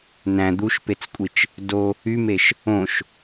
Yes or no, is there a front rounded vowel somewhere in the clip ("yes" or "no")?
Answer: yes